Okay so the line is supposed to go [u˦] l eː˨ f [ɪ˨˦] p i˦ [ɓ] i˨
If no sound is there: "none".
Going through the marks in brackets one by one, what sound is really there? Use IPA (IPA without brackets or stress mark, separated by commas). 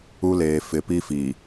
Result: u˦, ɪ˨˦, f